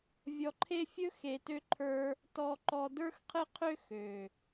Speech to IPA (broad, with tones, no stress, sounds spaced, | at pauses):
vʲ ɔ˧ ǃʰ e˦ fʲ ɵ˦ x e˨ t ø˧ ǃʰ ə˞˧ | t ɔ˧ ǃ ɔ˧ d ə˞˦ x qʰ ɘ˦ qʰ ø˦ x ø˨